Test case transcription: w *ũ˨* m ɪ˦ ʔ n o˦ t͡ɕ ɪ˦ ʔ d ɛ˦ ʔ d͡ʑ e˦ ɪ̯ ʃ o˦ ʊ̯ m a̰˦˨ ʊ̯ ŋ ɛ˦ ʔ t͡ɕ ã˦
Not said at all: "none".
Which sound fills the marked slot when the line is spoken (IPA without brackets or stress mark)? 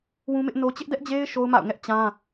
ũ˦